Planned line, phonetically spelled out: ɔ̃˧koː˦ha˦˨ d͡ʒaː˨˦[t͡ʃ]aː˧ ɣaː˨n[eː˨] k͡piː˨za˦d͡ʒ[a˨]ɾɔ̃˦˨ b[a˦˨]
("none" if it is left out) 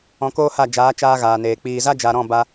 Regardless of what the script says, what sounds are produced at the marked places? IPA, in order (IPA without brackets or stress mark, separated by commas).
t͡ʃ, eː˨, a˨, a˧